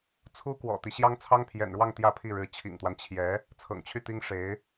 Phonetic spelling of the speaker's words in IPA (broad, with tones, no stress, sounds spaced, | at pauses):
t͡sʰ u˥ k w ɔ̰˨˩ t̪ i˦ ɕ j ɑ˥ ŋ t͡sʰ ɑ˥ ŋ pʰ j ɛ̰˨˩ n ɻ w ɑ˥˧ ŋ t̪ j ä˥˧ pʰ i˥˩ ɻ ɻ̩˧˥ t͡ɕʰ ḭ˨˩ ŋ t̪ w a˦ n t͡ɕʰ j ɛ˧˥ | t͡sʰ ɤ̰˨˩ ŋ t͡ɕʰ y˥˩ t̪ i˥ ŋ ʂ e˧˥ ɪ̯